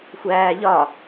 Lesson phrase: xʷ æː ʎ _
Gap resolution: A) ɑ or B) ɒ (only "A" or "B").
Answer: B